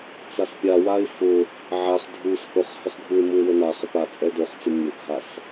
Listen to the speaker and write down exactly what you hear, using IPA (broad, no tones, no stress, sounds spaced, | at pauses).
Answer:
t͡s a s pʲ a w a ɪ̯ f ʊ | ʕ a χ dʱ u s h ʊ χ h ə χ ɡʱ u ɪ̯ m u ɪ̯ w ə n a χ ə p a t͡sʼ ɛ d o χ t͡s ʊ mʲ ʊ ɡʱ a s